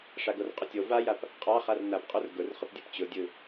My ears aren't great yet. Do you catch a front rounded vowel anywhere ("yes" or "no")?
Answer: no